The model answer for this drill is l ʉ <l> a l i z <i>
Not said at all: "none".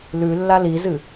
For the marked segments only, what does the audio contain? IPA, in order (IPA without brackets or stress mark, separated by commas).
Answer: lː, ɨ